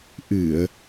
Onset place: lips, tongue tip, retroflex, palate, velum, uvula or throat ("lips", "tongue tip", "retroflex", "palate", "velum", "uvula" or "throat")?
throat